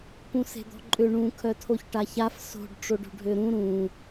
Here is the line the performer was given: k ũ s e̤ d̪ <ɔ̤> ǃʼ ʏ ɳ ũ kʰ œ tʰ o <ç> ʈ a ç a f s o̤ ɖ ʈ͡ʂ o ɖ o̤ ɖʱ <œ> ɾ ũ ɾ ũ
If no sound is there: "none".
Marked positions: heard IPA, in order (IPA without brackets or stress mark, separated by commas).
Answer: ɔ̤, ç, ø